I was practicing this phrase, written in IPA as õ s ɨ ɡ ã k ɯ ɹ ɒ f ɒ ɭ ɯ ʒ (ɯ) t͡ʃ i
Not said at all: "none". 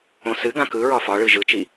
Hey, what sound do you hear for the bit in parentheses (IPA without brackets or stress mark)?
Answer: ɯ